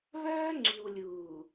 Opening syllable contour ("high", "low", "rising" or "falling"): high